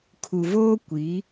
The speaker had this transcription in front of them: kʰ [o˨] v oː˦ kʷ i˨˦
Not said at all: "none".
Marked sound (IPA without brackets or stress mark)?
u˨